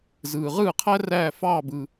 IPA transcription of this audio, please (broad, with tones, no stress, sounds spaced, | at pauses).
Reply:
z ɯː˩ ʁ ɯː˥˩ qʰ æ˥ r æː˥˩ f ɑː˥˩ b ɯ˩